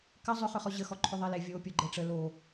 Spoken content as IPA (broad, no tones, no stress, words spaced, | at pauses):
kə zˤʏχʏχɔ ʑəxɔ ǃʰʏðˤele vʲo pʲoɡ͡ǃɛʈ͡ʂə lo